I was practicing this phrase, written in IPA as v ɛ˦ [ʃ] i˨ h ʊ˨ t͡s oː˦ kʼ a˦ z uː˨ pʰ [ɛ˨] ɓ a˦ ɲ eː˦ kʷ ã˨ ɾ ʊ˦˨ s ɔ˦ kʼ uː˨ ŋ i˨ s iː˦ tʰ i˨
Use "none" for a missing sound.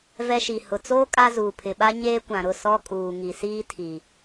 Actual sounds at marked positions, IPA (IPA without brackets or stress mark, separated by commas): ʃ, ɪ˨